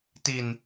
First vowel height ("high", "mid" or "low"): high